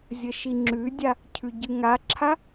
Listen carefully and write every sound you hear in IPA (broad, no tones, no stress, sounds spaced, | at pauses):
zʲ ə ʃ i ŋ͡ǁ ʉ dʲ a | cʰ ʉ ɟ ɨ ŋ a ǁʰ a